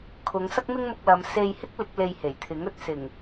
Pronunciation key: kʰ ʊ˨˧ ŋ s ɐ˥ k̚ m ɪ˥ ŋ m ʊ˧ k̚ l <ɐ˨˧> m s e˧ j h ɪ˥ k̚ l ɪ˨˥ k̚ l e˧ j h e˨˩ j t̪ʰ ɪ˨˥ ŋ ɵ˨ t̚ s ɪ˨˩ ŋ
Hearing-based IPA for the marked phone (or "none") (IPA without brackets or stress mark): ɐ˨˧